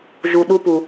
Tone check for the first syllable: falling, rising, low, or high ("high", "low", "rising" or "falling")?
low